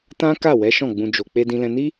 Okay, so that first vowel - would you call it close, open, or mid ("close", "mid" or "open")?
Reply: open